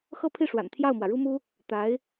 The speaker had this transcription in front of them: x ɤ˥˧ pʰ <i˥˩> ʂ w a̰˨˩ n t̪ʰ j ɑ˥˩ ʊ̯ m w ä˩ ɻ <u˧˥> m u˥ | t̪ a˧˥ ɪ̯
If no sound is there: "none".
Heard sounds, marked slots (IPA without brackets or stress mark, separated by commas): i˥˩, u˥